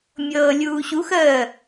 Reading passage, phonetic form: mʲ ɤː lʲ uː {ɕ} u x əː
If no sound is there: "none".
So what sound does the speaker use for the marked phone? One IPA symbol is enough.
ɕ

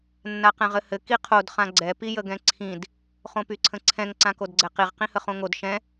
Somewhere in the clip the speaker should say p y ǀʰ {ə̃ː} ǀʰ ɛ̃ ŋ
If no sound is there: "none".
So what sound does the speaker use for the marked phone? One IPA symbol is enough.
ə̃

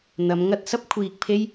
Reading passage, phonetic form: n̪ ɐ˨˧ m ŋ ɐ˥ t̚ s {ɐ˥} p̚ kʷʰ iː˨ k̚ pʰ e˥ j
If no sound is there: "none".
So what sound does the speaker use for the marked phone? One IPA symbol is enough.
ɐ˥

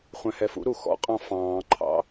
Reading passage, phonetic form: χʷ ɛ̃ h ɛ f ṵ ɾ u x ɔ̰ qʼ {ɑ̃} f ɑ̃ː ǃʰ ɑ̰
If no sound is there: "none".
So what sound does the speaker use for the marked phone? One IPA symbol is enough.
ɑ̃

